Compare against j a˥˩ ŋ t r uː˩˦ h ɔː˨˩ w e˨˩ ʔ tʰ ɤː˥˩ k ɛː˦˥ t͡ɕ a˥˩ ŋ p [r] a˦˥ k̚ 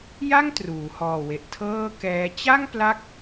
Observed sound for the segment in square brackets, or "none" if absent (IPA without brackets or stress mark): l